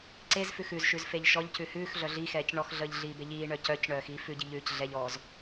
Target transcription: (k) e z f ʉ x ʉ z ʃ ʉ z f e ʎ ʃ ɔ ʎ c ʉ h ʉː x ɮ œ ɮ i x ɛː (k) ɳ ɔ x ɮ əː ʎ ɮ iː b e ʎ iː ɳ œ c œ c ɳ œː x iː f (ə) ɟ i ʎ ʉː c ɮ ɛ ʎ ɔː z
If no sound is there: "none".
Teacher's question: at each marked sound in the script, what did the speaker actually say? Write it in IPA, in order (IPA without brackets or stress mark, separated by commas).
ǀ, c, ʉ